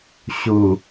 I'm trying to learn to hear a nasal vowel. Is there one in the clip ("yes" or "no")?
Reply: no